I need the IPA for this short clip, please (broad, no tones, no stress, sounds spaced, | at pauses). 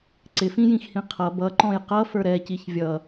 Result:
ǀ ɪ f ĩ j ĩ x h ĩ qʰ ʌ b ʌ ǃ ɔ̃ j q ʌ f ə˞ ɾ ɛ c i ç vʲ ʌ